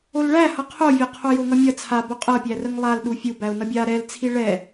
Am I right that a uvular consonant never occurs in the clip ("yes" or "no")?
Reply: no